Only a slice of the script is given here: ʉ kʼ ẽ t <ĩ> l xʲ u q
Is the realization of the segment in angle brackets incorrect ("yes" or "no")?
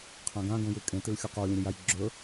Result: yes